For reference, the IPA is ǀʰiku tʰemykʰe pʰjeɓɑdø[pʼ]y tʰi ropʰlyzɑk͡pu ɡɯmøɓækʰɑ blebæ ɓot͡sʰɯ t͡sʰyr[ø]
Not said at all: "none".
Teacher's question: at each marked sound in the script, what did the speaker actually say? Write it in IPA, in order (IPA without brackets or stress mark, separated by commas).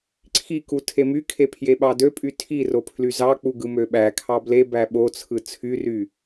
pʼ, y